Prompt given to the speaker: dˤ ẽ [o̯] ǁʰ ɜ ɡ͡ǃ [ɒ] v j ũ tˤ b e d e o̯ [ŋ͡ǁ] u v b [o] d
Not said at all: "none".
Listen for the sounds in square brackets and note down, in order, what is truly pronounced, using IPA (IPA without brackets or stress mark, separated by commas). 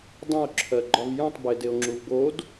o̯, ɒ, ŋ͡ǁ, o